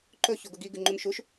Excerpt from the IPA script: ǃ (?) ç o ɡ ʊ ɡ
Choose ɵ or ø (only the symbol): ɵ